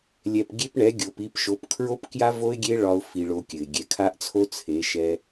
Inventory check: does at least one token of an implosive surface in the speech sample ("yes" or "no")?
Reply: no